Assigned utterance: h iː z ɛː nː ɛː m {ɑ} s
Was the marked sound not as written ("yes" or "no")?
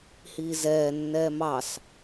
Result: no